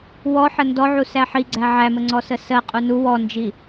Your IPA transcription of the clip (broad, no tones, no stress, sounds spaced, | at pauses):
w ɔ ħ ə n d ɔ ʕ u s æ ħ i ɡ͡ǀ æ ʕ æ m ə ŋ͡ǀ ɔ s ə s ɜ qʼ u n u w ɔ n d͡ʒ i